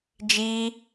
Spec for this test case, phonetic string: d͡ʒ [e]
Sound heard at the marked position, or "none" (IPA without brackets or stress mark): i